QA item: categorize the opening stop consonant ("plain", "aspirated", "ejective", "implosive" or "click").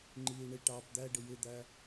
click